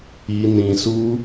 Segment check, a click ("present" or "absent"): absent